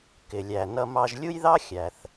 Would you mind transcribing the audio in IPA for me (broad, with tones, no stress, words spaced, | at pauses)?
kɪ˩lʲæ˩nʌ˧ mɑ˧ʒ lʲu˥jðɑ˥xʲæ˩θ